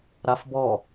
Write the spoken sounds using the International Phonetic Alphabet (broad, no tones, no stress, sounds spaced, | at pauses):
ɾ a f b ɔ